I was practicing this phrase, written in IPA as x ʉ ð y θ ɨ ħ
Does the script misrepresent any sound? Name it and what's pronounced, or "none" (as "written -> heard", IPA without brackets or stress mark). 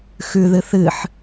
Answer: y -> ɨ